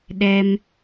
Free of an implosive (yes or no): no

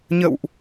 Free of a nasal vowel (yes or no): yes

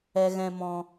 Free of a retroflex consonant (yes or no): yes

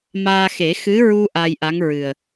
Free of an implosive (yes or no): yes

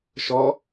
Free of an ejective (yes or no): yes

